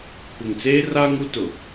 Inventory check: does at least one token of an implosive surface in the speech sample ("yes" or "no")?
no